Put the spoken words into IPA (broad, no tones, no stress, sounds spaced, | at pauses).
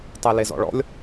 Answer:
tˤ e l e z ɔ̰ ɭ ɔ̰ lʲ